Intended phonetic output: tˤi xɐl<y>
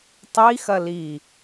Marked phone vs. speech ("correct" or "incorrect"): incorrect